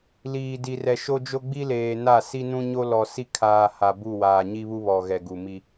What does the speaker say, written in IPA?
l iː˨ d i˨ r ɛ˨ ʃ o˦ d͡ʒ o˦ ɡ͡b i˦ l eː˨ n a˦˨ s i˦ n ũ˦ ɲ o˦ l ɔ˨ s i˦ kʰ aː˨ h a˨ b u˦˨ w aː˨ ɲ i˦ β u˦ β ɔ˨ ɣ ɛ˨ ɡ u˨ m i˦

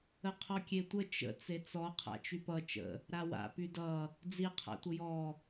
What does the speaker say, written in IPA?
ə qʰ ɔ kʲ e tʷ ə t͡ʃ ə̰ t͡s e t͡s ɔ qʰ a̰ t͡ʃ y p ʌ t͡ʃ ə̰ | ɾ a w a̰ p y d ʌ | d͡z i qʰ a̰ tʷ ə j ɔ

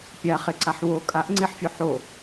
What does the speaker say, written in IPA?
pʲ a χ e ǀ a ħ w o kʼ a ʔ ŋ͡ǀ e ħ fʲ o ħ o

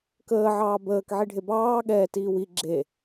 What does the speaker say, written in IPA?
k əː ʕ ɑː b əː k ʕ i ɖʱ e b ɑː ɠ ɛː t iː w i ɡ͡ǁ e

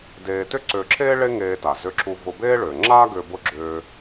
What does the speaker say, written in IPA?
d eː˧ t ʏ˥ ǀ ʏː˧ ǁʰ eː˥ ɭ e˥ ŋ eː˧ t a˩ z ʏ˧ ǁ u˧ v ʊ˧ b eː˥ ɭ ʏː˩ ŋ͡ǁ aː˥ ɡ ʏː˧ b ʊ˧ ɡ͡ǁ ʏː˧

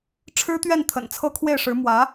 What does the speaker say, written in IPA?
ʈ͡ʂʰ ɻ̩˥ t̪ ɥ ɛ˥˩ n t̪ʰ ə̰˨˩ n t͡sʰ ɤ˥˧ kʰ w e˥˩ ɪ̯ ʂ ɻ̩˧˥ m w ä˧˥

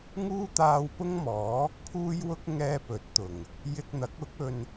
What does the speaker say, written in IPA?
ŋ uː˥ t̪ aː˧ w p ʊ˥ ŋ m ɔː˨˥ | pʰ uː˥ j w ʊ˥ k̚ ŋ ɛː˥ p ɵ˨˥ t̚ t̪ ʊ˨˩ ŋ | j ɪ˧ k̚ n̪ ɐ˨˥ k̚ ʊ˨˥ k̚ ɵ˧ n

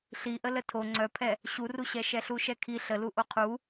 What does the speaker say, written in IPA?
ɬ i ʔ ə l ə tʰ o ŋ͡ǀ œ pʰ ɛ | ɕ u r u ɕ ɛ ʃ ɛ ɬ u ʃ ɛ kʰ i ɬ ə l u ʔ o qʰ u

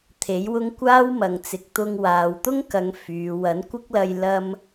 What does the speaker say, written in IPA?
t̪ʰ e˨˥ j w ʊ˥ ŋ kʷ aː˥ w m ɐ˨ ŋ t͡s ɪ˨ k̚ t̪ ʊ˧ ŋ w aː˨ w t̪ ʊ˥ ŋ k ɐ˨˧ ŋ f yː˨˧ w ɐ˨˥ n kʷ ɪ˥ k̚ l ɐ˧ j l ɐ˥ m

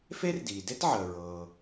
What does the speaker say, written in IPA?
f e˥ r d iː˩ d e˥ t ʕ əː˩ ɹ ɤː˩

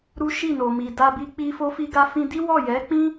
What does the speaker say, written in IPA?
ɾ u˦ ʃ i˦˨ n o˨ m i˨ d a˧ b i˧ k͡p i˧ f o˧ f i˧ ɡ a˧ f ĩ˧ d i˦ w ɔ˦˨ j ɛ˨˦ k͡p ĩ˦

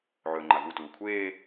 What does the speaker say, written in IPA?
ʕ ɵː ŋ͡ǃ a v u t uː kʷʰ eː

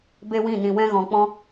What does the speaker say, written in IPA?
b e˦ w ĩ˦˨ n ĩ˨ w ɛ̃˧ ɣ ɔ̃˨ k͡p ɔ̃˧

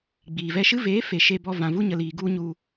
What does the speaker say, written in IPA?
ɡ͡b iː˨ v ɛ˧ ʃ ɨ˦ v eː˨˦ f e˨ ʃ e˧ b ɔ˧ v ã˨ v u˧ ɲ ə˨ l iː˨ ɡ u˦ ɲ u˧

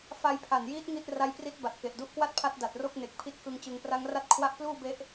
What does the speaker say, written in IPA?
f a˧ j pʰ a˨˩ n j iː˦˥ t̚ ŋ i˥˩ t̚ r a˦˥ j p r i˦˥ t̚ b a˨˩ t̚ k e˨˩ ʔ d u˦˥ ʔ k w a˥˩ t̚ pʰ a˦˥ t̚ d a˨˩ t̚ r o˥˩ k̚ n e˨˩ k̚ pʰ i˦˥ t̚ k ɯ˧ ŋ t͡ɕ ɯ˩˦ ŋ p r a˦˥ ŋ r a˥˩ t̚ kʰ w a˦˥ ʔ p l uː˥˩ b e˦˥ ʔ

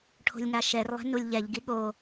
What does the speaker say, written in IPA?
ʈʰ o̤ lʲ ŋ a ʃ ɛ r lˠ e̤ n u lʲ ʎ ɛ ʎ ɡ i ɠ o

